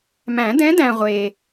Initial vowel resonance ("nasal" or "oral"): nasal